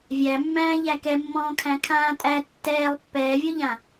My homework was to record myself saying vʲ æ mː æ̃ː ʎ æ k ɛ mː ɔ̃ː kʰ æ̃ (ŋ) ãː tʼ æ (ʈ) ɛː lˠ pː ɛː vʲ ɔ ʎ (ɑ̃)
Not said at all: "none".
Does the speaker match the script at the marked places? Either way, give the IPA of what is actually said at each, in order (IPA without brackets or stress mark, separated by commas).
kʰ, tː, ã